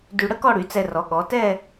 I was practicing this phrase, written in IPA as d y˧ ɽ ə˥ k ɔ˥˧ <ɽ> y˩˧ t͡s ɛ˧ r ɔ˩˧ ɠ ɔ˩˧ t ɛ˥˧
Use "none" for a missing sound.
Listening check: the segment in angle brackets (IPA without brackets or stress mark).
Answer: ɽ